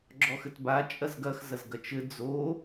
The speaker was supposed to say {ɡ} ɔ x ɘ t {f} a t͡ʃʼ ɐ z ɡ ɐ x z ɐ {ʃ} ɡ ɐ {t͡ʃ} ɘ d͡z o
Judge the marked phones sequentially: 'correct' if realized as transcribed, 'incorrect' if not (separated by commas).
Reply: incorrect, incorrect, incorrect, correct